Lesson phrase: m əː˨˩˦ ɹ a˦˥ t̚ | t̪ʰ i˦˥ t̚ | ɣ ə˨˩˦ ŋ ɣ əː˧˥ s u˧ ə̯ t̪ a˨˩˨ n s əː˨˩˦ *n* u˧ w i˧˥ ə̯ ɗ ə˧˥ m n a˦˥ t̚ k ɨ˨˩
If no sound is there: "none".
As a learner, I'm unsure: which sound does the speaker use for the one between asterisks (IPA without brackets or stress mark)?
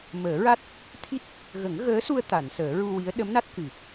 ɹ